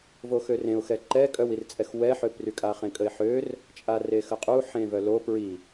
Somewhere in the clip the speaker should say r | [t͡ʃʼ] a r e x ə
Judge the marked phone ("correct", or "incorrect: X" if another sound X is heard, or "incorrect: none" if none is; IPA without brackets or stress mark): correct